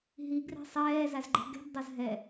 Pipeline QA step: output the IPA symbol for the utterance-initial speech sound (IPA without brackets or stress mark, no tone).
ɦ